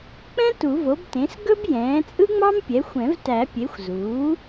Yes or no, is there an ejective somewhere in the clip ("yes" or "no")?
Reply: yes